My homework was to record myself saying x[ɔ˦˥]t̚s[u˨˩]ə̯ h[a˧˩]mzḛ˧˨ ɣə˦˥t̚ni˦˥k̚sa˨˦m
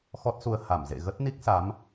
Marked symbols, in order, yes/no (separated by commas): yes, no, yes